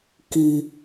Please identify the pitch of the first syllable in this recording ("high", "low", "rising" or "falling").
low